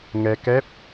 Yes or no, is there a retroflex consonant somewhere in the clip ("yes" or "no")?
no